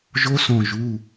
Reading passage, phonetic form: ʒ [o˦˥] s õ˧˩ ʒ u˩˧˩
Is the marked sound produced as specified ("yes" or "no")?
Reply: yes